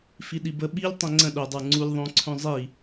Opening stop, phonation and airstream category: implosive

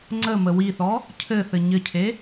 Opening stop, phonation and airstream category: click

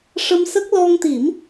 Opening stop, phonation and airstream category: plain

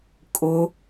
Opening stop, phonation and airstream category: ejective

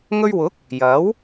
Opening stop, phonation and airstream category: plain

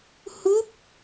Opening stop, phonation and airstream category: plain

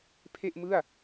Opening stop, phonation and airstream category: aspirated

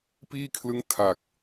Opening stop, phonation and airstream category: plain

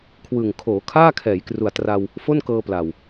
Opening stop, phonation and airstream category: aspirated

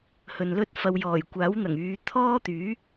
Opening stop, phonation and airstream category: plain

